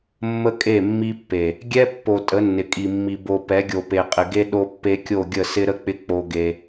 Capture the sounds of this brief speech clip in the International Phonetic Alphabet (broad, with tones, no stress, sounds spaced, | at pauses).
mː ə˦ kʼ e˦˨ mː i˦ pː e˨ | ɡʲ ɛ˦ pː o˨ tʼ ə˨˦ nː ɪ˨ kʼ i˨ mː i˨ b o˨ p ɛ˨˦ ɡʲ o˨ p e˨ qʼ ɪ˨ ɡ e˦ ɗ o˦ pː e˦ kʲ o˦˨ ɡʲ ə˦˨ s ɪ˦ ɾ ə˦ k͡p ɪ˦ k͡p o˦ ɡ e˦